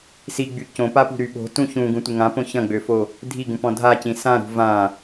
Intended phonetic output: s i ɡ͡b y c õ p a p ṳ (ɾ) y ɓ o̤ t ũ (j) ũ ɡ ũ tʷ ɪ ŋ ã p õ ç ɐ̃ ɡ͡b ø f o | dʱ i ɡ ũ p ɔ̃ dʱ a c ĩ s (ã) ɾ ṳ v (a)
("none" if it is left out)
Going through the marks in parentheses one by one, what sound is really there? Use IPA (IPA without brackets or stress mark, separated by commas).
ɾ, ç, ã, ã